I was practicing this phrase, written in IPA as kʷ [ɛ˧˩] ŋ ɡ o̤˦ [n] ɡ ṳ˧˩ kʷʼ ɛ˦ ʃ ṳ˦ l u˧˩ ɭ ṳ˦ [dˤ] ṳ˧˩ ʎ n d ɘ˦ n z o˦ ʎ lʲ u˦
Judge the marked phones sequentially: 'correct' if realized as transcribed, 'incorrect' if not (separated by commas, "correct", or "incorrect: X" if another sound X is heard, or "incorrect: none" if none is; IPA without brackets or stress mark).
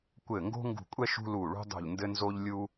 incorrect: ɘ˧˩, incorrect: ŋ, correct